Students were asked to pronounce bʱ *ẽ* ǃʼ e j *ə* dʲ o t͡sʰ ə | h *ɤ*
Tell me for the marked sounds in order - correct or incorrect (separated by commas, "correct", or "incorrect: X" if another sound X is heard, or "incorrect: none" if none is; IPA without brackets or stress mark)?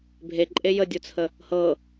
incorrect: e, correct, correct